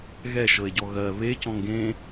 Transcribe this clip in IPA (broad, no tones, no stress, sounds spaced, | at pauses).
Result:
ɣ ɛ ʃ ɤ e̯ ɟ ɔ ɣ ɜ β e c ɔ̃ ŋ ɡ ẽ